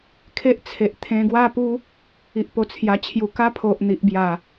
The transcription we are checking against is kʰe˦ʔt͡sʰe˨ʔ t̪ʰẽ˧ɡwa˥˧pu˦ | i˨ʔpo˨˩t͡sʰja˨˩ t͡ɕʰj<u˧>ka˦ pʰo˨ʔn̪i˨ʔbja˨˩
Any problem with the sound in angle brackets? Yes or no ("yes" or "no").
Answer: yes